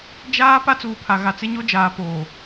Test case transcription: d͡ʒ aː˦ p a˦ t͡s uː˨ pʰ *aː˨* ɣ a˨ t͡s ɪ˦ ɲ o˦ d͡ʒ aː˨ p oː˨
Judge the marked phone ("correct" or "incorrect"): incorrect